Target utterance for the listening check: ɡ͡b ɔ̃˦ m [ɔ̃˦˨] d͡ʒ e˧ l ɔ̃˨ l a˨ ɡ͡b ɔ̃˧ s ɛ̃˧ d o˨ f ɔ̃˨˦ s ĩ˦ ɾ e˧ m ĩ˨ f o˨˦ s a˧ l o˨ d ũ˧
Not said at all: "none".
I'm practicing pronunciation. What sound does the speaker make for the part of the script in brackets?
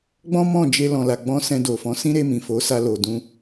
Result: ɔ̃˦˨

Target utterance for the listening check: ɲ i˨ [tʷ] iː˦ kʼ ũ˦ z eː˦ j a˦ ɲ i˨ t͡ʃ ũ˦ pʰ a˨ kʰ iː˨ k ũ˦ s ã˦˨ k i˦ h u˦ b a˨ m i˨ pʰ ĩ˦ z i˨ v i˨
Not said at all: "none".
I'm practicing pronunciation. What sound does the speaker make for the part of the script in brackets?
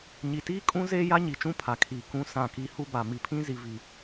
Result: t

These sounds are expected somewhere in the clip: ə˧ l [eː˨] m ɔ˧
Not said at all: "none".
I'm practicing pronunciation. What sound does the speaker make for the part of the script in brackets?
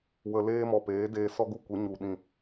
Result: eː˦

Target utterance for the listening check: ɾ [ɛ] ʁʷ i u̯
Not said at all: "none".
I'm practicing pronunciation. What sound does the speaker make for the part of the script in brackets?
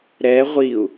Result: ɛ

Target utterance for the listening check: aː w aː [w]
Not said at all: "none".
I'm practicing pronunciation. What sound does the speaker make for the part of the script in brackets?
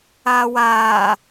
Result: none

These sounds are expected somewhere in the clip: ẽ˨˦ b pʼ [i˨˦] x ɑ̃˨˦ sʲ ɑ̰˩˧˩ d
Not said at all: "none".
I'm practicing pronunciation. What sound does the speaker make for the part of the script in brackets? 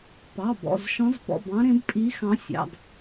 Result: i˨˦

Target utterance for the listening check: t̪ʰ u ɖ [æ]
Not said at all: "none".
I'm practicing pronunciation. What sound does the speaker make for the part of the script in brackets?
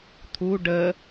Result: ə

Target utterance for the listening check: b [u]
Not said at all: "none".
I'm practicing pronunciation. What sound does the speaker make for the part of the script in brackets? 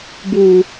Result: u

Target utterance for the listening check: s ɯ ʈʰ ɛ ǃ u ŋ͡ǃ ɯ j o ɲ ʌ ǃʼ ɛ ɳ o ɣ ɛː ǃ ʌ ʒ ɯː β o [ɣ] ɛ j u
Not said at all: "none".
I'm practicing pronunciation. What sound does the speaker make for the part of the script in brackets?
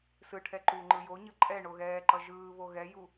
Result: ɣ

